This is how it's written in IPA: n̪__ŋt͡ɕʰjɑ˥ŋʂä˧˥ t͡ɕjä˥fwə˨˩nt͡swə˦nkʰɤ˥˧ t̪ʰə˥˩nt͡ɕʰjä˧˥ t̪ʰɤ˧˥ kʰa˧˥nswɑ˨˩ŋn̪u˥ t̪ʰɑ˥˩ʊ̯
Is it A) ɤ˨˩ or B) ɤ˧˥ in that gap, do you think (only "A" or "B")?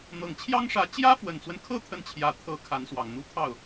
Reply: A